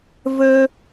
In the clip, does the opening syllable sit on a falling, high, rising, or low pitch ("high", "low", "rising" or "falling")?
high